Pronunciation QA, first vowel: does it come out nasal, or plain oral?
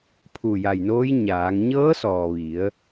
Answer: oral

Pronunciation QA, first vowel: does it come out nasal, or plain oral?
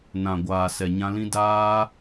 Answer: nasal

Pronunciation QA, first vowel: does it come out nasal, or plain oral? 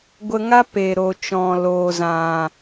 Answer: oral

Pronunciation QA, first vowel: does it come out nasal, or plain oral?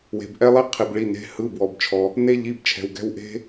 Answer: oral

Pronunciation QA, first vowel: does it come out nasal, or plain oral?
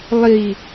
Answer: oral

